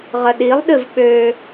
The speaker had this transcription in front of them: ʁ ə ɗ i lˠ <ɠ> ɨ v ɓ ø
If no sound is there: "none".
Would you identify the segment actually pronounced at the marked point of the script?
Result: ɗ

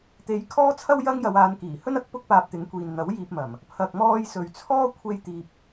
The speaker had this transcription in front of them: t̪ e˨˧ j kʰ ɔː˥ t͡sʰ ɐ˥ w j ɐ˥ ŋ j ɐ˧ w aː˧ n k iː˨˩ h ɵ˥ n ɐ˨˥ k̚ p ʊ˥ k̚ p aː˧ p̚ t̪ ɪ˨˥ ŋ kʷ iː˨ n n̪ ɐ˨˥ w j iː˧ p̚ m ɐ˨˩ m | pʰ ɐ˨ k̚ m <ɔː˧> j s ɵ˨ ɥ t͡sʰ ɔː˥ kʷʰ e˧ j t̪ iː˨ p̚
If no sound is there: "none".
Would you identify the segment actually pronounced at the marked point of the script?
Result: ɔː˧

